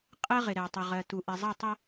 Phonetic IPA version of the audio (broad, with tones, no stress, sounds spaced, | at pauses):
qʼ ɜ˦ ʁ ɪ˨ ɾ ɛ˨ tˤ ʊ˨ ʁ ɜ˨ t u˨ ʔ ɪ˨ zˤ ʌ˦˨ tˤ ʌ˦